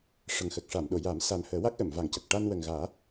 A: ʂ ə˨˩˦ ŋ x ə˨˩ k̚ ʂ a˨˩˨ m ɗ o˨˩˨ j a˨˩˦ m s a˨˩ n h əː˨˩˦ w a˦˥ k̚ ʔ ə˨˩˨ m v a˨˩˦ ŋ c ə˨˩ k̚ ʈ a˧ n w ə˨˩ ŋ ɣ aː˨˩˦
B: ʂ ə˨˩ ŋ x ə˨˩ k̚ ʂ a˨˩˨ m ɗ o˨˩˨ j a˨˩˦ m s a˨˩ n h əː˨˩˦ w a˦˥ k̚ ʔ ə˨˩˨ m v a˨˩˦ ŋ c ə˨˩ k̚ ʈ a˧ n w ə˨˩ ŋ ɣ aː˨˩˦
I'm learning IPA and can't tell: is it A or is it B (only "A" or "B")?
B